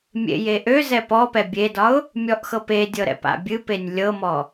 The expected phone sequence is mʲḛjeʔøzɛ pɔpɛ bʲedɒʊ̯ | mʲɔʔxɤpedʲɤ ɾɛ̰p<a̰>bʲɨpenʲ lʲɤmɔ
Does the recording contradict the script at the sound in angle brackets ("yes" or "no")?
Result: no